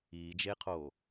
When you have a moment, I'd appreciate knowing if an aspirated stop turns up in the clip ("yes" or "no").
yes